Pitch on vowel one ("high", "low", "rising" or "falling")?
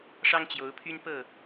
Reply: high